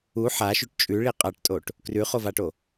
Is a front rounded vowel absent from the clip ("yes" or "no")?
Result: yes